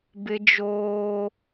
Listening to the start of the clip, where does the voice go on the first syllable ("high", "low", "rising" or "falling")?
high